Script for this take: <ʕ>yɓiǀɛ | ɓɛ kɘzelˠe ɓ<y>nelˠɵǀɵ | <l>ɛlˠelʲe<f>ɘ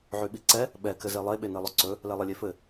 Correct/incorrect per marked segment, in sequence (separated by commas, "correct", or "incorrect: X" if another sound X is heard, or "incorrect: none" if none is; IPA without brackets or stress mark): correct, incorrect: e, correct, correct